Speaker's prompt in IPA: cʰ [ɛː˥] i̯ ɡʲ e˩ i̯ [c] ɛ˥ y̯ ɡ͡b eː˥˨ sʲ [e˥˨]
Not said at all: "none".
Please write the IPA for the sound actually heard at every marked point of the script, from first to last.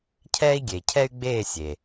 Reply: ɛː˥, cʰ, e˩

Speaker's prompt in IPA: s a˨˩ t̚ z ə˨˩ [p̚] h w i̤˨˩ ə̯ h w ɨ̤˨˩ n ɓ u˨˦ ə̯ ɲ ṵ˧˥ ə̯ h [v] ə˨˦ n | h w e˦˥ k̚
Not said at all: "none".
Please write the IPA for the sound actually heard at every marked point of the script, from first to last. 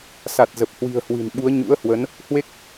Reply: p̚, w

